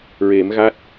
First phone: ɹ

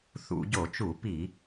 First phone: θ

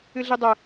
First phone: ɨ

